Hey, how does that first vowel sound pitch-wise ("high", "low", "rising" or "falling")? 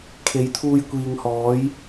rising